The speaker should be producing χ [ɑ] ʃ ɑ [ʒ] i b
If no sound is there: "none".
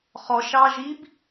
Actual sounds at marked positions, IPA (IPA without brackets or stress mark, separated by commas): ɔ, ʒ